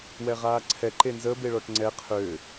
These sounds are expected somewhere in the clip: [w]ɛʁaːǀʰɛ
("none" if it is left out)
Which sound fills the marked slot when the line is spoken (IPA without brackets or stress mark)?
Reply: w